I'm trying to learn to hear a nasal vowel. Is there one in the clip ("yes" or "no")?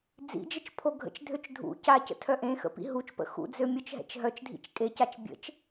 yes